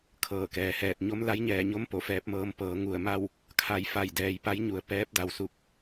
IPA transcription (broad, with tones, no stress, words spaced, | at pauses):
kʰɤː˧˩kɛː˩hɛː˧˩t̚ ɲo˧˥m la˧˥jɲɛː˧˩ɲo˧˥m po˧˩fɛː˧p̚mɤː˧m pɤː˩˧ŋu˧˩ə̯ma˥˨w | kʰa˧˩jfa˧˩j dɛː˩jpa˧˥jɲu˩ə̯ pɛː˧˥p̚da˩wsu˧˩k̚